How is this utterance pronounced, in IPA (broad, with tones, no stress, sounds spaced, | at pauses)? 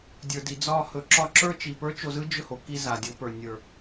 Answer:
dʲ ə˞˨ d i˨ d͡z ɒ˦˨ h ɵ˨˦ ǁ ɒ˧ ǁ ə˞˦ t͡ʃ i˨ p ə˞˦ t͡ʃ o˧ z ɯ˦ d͡ʒ ɵ˦˨ h o˨ k i˧ z a˨ dʲ o˨˦ p ə˞˨ nʲ ə˞˨